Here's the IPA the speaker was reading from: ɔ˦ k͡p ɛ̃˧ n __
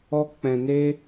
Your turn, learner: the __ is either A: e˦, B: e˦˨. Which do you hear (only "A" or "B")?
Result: A